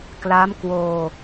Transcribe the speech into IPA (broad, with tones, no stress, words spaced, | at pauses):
kla˦˥m kwoː˧